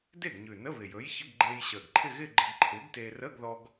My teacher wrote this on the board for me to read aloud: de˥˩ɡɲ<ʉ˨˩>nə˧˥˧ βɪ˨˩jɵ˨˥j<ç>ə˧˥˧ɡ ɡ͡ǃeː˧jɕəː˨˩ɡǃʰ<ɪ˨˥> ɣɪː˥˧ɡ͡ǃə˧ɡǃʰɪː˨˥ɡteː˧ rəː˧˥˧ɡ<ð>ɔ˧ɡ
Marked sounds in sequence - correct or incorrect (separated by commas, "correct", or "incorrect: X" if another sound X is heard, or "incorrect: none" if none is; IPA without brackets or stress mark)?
correct, correct, incorrect: ɪ˥˧, correct